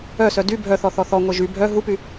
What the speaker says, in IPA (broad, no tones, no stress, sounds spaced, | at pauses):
œ s œ d y bʱ œ θ ɔ θ ɔ θ ɔ ŋʷ e ʒ y bʱ œ ɦ u p y